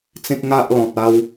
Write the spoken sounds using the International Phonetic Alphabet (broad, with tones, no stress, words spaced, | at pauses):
t͡sẽ˦k̚ŋa˦ʔlɔ̃˨t̚ a˦w